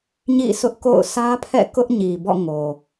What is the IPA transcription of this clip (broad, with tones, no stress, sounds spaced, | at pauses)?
ɲ ḭ˦˨ sʰ ʊ˦ ʔ k o̰˦˨ ʊ̯ sʰ ä˦ pʰ ɛ̰˦˨ k ʊ˦ ʔ ɲ i˨ b ɔ̰˦˨ ŋ o˨